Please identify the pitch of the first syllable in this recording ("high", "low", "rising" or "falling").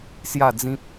falling